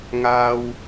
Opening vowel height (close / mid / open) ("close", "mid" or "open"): open